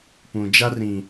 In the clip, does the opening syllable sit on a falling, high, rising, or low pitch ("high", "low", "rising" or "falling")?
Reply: low